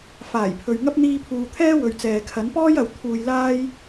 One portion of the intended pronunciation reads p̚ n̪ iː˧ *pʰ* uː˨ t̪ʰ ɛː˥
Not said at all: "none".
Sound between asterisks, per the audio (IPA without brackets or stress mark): pʰ